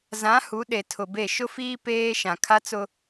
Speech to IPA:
zã˨˦ hu˨˦ɗe˨ tʰʊ˨be˦˨ ʃʊ˦fiː˦ peː˦ʃã˨ kʰa˦t͡sʊ˦

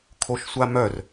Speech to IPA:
kʰoʃsʷamœr

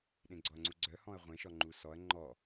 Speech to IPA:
ɗẽɡ͡ǀɔɐ̯ŋ͡ǀuɡ͡ǀœ hɔ̃ɐ̯ʁʷẽʃɔ ŋ͡ǃusɔɐ̯ ŋ͡ǃɔ

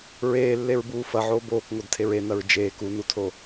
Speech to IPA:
ɹeːlːeɹbuː fɐʕoː boːkŋodtʰeɹ enɐɹ d͡ʒeːk unutʰo

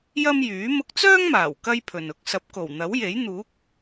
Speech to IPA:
jɐ˥mjyː˨˥ mʊ˧k̚t͡sœː˥ŋmaː˨˩w kɐ˥jpʰɵ˨nʊ˧k̚ sɐ˨˥p̚ko˨˩wn̪ɐ˨˥wje˨˥j n̪uː˨˥k̚

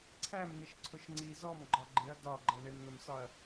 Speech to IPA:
ǀʰæmnɪʃ ǀʰʊʃŋ͡ǀi zɔm ɡ͡ǃɒɡ͡ǃɪɐ̯ dɒ ɡ͡ǃɜɳɪmn̪əmsɒɐ̯

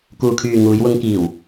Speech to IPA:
kuː˨kʰyː˨ ŋuː˨˧jwʊ˧ŋ kiː˨˩w

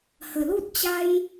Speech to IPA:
hə˨˩lu˦t̚ t͡ɕa˧j

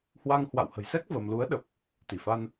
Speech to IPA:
hwa˧ŋhwa̰˧˨w hə̤˨˩jsɛ˦˥k̚ və˧m lu˨˦ə̯ɗə˨˩p̚ | t̪i˧˩fa˧n

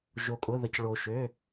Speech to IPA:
ʒo˧kʼʊ˧˥˧ðə˧c ɭo˧ ʃø˧˥˧

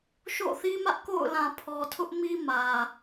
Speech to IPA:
ʃo̰˦˨θi˦mä˦ʔko̰˦˨ʊ̯ lã˨pʰɔ˨tʰʊ˦ʔmi˦ mä˦

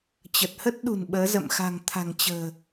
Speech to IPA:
t͡ɕə˨˩t̚ hə˦˥t̚ɗṳ˨˩n ɓəː˨˦zə̰˧˨m xa̤˨˩ŋt̪ʰa̤˨˩ŋ t͡ɕə̤ː˨˩

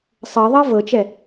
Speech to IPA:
sˤɤðˤɤ vɤt͡ʃɛ

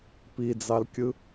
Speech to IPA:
pid͡zɑlkʲɯ

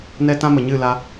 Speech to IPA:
nɛ˦tã˦mə˨ɲɨ˦˨ la˦

